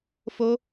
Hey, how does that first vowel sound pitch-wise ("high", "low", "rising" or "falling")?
high